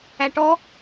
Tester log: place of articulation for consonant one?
retroflex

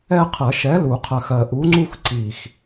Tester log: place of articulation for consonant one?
uvular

